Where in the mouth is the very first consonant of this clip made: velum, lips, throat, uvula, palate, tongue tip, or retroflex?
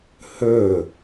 throat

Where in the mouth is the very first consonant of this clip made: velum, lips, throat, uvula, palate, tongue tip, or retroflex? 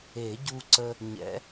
palate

